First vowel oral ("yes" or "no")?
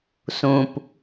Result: no